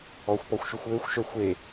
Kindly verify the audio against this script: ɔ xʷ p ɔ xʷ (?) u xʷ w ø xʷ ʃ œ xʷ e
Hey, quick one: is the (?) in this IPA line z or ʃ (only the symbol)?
ʃ